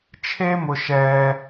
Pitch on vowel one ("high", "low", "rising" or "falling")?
high